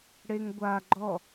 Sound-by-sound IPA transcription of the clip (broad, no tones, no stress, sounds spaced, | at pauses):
ɽ e ŋ ɡʷ a ɡ͡ǃ ɔ